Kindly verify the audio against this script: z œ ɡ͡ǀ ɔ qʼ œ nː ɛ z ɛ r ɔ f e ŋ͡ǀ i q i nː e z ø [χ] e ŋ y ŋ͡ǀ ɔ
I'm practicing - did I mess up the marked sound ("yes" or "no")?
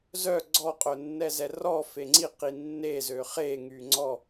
no